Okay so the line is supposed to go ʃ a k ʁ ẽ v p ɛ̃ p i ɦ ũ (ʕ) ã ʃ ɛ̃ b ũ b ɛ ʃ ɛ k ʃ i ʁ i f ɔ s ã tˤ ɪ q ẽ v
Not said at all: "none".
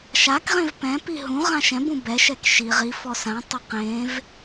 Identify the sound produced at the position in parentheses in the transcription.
ʁ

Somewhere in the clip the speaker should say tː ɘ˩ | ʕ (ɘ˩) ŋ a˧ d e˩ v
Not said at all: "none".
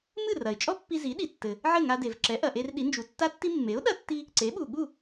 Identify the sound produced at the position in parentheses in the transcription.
ɘ˥˩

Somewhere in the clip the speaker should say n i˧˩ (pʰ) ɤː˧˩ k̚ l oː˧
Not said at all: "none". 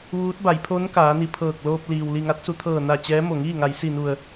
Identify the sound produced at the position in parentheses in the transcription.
pʰ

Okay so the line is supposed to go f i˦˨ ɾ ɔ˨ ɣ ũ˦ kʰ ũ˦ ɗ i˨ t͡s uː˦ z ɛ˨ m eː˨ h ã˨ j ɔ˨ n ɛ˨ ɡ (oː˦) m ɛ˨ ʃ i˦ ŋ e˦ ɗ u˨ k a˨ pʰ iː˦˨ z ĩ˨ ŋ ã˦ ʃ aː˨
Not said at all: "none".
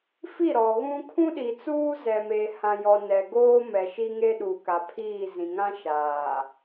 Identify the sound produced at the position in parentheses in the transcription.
oː˦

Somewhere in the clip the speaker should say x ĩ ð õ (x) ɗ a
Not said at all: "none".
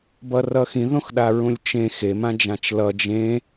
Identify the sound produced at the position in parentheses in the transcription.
x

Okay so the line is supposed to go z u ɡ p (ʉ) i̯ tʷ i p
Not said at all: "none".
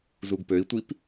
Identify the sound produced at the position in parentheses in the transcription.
ø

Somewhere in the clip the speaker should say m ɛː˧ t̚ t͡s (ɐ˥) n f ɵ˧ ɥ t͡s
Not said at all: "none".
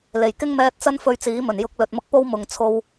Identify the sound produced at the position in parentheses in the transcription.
ɐ˥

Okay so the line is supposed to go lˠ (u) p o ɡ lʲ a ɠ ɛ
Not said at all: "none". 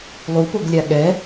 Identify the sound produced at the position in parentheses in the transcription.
u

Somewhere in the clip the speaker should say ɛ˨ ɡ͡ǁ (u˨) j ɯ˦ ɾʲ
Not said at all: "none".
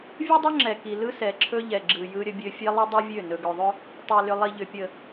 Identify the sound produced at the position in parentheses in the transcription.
ɯ˨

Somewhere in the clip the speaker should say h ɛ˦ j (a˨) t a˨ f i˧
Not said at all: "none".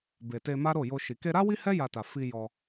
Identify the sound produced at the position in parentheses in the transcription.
a˧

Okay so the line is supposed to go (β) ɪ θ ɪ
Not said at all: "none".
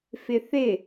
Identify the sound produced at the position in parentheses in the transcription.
f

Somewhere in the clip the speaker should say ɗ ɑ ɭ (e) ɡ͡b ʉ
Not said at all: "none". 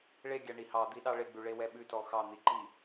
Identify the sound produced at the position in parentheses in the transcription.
e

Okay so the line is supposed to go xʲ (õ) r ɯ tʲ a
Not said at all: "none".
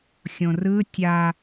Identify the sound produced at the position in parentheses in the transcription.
õ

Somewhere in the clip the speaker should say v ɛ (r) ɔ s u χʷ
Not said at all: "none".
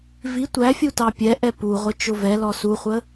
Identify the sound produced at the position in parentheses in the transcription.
l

